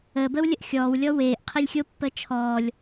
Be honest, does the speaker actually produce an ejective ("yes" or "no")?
no